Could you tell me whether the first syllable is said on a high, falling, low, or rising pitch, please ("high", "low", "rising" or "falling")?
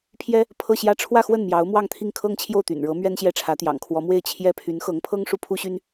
high